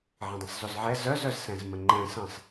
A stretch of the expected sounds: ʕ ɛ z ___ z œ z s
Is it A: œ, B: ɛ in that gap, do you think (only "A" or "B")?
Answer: A